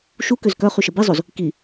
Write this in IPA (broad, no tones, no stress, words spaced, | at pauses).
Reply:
ʃukøz kœχyʃə bizˤoz | ki